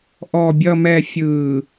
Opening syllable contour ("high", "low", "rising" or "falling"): low